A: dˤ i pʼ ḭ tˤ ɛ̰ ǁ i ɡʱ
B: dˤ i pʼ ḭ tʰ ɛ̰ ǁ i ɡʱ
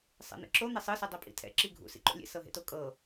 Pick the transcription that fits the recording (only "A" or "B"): B